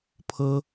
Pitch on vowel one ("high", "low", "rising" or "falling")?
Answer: high